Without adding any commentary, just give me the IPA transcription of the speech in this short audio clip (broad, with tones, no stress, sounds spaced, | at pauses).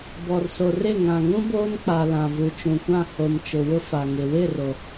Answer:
b ɔ˨ r s o˨ r ɪ˦˨ ŋ ã˨ ŋ ũ˦ b oː˦ n k͡p a˨ l ã˨ v u˨ t͡ʃ ũ˨ kʷ ã˦˨ h o˨ m t͡ʃ ʊ˨ w ʊ˦ f a˨ ŋ ɪ˨ w ɪ˦˨ r o˨